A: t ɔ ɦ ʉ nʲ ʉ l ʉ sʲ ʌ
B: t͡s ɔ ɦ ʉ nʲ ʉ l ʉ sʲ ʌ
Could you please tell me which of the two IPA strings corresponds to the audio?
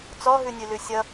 B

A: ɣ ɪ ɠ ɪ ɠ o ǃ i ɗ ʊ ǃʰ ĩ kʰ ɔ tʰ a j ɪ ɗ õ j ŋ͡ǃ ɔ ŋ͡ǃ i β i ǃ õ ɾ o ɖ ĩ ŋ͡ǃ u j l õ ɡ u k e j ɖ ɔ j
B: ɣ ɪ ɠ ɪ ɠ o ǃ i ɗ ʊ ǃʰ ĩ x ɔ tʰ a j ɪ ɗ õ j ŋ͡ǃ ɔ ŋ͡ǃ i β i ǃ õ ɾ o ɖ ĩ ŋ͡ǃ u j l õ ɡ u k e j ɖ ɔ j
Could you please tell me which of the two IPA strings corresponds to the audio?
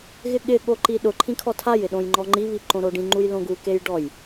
A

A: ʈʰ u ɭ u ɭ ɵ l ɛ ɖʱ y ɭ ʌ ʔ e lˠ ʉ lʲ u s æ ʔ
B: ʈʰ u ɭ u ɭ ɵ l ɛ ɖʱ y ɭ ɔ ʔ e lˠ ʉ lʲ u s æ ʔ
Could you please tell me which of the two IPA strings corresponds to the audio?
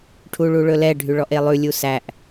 B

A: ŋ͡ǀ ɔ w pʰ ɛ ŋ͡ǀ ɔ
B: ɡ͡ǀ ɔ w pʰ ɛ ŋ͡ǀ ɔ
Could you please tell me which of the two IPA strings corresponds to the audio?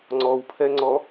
A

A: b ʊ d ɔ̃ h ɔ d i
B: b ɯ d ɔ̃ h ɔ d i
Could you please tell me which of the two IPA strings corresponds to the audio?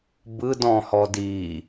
B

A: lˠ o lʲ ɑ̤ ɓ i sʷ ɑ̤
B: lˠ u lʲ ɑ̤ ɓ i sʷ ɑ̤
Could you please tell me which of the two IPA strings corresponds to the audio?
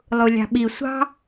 B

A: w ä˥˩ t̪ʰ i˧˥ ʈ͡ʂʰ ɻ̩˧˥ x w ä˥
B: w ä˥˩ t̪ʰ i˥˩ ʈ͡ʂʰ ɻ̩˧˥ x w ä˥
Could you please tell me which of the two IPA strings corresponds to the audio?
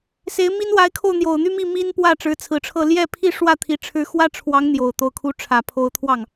A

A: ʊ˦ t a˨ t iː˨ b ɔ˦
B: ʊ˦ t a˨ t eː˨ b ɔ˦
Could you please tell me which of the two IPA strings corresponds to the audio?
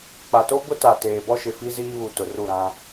B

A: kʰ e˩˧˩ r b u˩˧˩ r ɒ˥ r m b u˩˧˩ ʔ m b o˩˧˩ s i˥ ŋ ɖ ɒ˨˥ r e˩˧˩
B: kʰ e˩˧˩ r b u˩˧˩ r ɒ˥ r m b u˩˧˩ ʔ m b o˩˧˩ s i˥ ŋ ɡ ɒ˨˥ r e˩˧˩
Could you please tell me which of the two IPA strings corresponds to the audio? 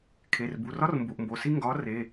B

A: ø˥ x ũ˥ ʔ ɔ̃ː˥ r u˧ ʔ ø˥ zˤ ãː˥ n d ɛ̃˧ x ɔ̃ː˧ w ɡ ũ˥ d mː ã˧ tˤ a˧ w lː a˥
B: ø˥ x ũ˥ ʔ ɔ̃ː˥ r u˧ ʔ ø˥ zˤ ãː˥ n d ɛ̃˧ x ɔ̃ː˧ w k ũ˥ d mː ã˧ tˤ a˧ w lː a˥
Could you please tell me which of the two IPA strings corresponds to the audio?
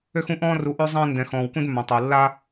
B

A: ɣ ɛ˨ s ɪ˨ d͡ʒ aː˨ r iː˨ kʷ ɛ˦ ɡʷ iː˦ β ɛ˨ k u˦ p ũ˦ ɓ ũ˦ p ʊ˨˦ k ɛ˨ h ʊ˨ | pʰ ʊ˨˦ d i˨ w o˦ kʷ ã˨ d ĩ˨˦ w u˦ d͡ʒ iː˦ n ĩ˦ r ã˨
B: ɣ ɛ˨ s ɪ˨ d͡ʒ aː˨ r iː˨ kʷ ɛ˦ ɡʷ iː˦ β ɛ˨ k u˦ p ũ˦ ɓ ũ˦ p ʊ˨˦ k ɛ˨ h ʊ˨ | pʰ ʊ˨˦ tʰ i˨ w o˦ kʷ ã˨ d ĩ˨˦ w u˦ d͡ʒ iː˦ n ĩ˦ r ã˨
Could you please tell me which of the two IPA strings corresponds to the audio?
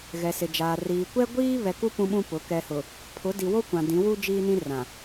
A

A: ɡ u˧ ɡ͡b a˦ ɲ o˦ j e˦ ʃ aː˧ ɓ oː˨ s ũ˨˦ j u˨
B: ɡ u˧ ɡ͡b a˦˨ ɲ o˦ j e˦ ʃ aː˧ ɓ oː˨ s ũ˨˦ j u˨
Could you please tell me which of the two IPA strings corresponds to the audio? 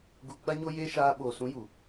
A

